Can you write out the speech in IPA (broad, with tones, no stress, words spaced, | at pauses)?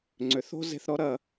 ŋ͡ǀʏ˨˦θo̤˦ze̤˧θɾɔ˦ ɾɐ˦